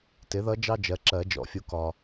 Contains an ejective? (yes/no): no